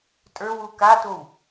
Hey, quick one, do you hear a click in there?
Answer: no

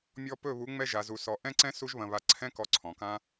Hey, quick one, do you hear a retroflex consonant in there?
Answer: no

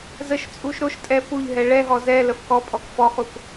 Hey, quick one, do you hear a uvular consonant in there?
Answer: yes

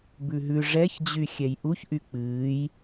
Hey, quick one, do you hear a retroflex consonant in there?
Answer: yes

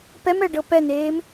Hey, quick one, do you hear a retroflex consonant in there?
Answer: yes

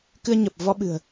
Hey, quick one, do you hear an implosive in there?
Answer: yes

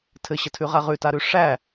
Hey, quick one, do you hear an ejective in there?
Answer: no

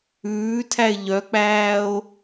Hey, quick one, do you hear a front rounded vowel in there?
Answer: yes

